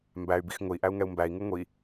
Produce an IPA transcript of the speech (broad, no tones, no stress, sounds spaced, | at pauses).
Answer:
m b æ y̯ b i x ŋ ʊ i̯ ʔ æ u̯ ŋ ɛ u̯ m b æ i̯ ŋ u ŋʷ i